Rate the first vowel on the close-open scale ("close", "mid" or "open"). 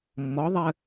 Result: mid